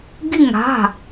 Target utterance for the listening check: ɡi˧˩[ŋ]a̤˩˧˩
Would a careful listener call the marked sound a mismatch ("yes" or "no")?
no